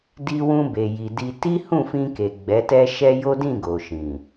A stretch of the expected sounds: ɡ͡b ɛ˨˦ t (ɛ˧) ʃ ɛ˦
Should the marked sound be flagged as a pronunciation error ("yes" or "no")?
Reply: yes